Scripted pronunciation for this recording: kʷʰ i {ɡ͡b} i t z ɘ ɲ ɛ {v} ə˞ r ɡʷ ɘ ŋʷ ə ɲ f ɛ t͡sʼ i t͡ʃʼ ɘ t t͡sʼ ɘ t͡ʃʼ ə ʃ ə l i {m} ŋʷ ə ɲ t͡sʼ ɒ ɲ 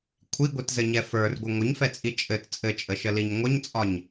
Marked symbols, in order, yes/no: no, no, no

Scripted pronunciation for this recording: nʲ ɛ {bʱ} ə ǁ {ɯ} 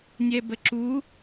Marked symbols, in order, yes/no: no, no

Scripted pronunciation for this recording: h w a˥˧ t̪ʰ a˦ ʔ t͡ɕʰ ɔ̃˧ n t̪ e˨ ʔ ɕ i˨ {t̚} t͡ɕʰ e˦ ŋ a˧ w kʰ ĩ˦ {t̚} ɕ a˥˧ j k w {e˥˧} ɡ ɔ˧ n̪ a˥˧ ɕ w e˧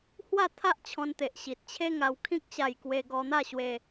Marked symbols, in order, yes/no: yes, no, no

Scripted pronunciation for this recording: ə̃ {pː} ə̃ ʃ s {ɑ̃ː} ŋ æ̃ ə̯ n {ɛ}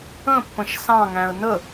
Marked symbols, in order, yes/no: yes, no, no

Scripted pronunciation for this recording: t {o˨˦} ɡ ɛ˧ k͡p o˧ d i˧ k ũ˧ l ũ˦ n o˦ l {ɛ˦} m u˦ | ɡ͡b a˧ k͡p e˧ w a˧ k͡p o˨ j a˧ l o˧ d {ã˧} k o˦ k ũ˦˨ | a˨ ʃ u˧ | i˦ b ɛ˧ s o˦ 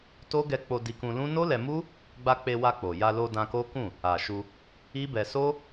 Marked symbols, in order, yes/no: no, no, yes

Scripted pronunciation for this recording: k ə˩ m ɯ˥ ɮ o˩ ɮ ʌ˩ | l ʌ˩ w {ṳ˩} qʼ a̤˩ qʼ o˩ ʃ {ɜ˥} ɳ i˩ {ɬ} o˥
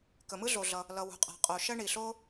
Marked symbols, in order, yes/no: yes, yes, yes

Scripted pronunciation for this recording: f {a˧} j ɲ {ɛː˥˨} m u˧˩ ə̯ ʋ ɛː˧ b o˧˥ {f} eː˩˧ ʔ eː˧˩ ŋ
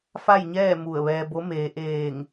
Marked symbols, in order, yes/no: no, yes, no

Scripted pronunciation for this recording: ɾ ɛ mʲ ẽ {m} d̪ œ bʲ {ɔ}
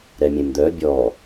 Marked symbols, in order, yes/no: yes, yes

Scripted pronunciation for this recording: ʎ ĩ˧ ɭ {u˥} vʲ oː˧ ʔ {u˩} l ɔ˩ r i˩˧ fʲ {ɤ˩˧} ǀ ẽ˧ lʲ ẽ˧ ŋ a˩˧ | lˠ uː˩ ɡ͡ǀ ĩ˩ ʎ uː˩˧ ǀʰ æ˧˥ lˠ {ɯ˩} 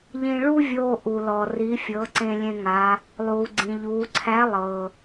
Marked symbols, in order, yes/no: yes, yes, yes, no

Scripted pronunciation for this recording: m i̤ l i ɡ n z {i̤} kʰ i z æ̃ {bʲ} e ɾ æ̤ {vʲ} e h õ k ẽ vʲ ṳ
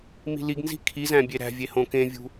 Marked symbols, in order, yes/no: yes, yes, yes

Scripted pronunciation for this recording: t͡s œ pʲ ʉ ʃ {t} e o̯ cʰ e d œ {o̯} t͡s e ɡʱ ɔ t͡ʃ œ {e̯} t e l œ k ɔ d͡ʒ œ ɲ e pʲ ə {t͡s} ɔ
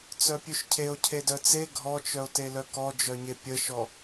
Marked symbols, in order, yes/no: no, no, no, no

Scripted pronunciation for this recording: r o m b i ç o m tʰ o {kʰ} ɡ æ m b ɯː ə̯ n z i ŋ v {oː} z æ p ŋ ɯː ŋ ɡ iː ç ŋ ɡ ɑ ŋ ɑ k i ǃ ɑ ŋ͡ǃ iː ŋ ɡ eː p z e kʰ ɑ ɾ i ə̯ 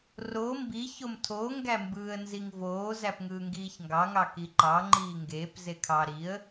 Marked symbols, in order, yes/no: no, yes

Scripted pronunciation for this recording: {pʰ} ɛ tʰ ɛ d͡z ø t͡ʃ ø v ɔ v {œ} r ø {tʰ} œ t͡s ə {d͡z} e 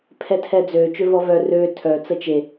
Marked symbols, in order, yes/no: yes, yes, yes, no

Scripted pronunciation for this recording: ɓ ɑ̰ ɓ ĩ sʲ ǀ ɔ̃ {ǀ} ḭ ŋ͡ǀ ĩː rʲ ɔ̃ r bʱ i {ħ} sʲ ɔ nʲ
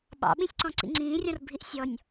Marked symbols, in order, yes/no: yes, no

